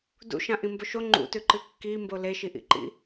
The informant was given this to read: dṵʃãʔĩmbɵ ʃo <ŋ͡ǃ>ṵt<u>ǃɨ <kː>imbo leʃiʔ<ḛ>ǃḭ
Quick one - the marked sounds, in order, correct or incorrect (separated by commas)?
correct, incorrect, correct, incorrect